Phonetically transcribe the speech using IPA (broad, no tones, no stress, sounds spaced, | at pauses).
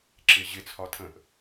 ǁ ɪ ʑ ɪ t͡sʰ ɒ tʰ ə̃ ʔ